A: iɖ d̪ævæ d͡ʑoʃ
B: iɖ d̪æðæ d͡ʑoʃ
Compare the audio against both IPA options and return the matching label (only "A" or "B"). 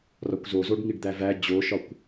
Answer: A